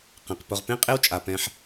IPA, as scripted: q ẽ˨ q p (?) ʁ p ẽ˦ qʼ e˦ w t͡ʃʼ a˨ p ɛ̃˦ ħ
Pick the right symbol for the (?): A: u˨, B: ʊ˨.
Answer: B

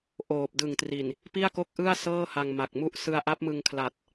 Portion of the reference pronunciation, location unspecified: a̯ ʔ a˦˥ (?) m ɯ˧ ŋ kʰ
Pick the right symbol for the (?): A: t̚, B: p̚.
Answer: B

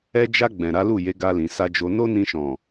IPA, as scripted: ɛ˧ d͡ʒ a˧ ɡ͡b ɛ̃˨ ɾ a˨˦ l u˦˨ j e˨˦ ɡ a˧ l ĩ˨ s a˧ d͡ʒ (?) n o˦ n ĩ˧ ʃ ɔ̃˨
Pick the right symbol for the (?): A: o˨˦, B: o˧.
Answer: B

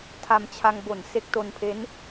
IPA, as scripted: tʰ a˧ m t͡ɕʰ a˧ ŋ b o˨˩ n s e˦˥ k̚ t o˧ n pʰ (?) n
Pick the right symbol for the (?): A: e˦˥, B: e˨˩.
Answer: A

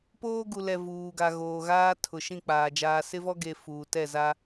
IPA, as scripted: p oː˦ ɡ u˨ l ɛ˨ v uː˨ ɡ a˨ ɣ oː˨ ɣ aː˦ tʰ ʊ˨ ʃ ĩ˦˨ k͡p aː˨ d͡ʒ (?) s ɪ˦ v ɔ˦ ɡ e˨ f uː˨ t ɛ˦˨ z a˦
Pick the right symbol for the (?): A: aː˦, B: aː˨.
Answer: B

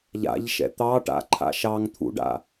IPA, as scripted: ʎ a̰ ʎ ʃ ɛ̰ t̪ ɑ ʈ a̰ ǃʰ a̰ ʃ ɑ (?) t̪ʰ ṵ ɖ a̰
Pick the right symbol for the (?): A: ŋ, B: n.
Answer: A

